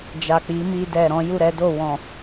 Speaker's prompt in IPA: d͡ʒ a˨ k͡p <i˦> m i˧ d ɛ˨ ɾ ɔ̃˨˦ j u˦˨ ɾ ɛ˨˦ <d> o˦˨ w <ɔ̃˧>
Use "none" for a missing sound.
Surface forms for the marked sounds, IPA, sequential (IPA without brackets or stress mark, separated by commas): i˨˦, d, ɔ̃˨